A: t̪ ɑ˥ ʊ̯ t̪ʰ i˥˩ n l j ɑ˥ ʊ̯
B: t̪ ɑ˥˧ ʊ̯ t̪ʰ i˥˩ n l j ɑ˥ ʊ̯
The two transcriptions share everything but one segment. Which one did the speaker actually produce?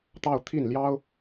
B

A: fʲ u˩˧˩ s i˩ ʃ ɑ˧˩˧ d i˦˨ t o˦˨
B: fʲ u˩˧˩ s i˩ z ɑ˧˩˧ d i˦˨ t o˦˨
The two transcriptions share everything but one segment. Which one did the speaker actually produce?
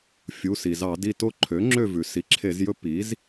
B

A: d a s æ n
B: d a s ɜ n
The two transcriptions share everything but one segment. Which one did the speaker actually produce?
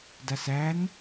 A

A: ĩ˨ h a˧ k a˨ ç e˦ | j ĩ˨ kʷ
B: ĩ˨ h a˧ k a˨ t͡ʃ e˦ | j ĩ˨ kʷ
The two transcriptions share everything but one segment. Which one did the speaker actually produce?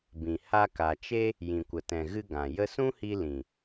B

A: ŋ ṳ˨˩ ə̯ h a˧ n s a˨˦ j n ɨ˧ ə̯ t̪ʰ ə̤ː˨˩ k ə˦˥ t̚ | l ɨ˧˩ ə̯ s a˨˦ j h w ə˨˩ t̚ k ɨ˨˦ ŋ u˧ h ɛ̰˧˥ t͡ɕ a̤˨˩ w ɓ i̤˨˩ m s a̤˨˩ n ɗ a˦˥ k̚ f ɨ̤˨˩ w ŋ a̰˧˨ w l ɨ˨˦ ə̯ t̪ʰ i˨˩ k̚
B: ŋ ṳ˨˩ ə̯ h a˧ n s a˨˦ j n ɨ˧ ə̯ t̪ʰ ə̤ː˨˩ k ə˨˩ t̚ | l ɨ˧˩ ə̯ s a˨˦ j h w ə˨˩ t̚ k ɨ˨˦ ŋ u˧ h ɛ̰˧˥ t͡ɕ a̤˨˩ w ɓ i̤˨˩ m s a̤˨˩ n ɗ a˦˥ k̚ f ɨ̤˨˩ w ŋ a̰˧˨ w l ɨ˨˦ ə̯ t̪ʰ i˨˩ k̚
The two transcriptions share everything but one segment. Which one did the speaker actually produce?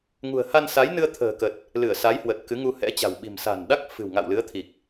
B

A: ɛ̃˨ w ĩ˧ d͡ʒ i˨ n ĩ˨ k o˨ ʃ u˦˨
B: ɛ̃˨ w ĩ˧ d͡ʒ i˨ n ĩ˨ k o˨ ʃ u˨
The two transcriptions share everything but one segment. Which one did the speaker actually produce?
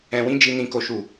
B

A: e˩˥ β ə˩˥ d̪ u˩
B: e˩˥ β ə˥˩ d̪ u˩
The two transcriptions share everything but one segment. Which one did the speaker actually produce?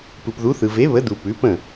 A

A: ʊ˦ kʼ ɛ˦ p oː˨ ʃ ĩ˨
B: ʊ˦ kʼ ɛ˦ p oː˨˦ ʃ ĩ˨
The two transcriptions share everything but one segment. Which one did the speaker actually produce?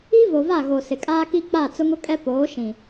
B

